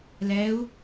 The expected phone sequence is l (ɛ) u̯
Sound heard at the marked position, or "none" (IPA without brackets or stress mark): ɛ